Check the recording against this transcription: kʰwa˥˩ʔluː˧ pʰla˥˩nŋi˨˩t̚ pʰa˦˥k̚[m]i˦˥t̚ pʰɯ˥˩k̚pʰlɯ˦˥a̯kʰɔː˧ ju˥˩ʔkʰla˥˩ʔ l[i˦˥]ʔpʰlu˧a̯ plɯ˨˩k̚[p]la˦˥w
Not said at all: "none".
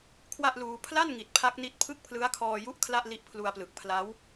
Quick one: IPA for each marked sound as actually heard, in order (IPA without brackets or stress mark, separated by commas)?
n, i˦˥, pʰ